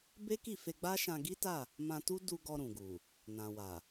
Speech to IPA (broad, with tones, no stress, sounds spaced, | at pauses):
b e˦ k i˦˨ f e˧ ɡ͡b a˦ ʃ ã˧ ɡ i˦ t a˦˨ | m ã˧ t u˦ d u˧ ɡ ɔ˧ ɾ ũ˨ ɡ u˨ | n ã˨ w a˨